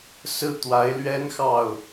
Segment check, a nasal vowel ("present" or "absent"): absent